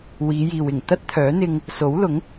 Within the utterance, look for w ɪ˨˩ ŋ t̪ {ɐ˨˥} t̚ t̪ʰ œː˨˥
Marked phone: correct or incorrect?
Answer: incorrect